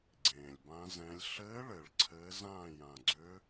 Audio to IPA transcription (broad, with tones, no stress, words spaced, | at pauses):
ɡ͡ǀẽː˨˩lʲbã˧˥zɛ̃˧˥lʲ ɬɘː˧˥ɭɘ˨˩˦ɭ ǀʰɘː˧˥zãː˥˨ jã˨˩ɡ͡ǀʏ˧˥